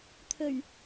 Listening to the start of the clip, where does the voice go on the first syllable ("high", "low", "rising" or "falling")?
low